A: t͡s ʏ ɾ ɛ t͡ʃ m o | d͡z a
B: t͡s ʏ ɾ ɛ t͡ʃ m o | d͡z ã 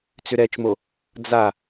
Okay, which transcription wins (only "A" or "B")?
A